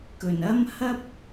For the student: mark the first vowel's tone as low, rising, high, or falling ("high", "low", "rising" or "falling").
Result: low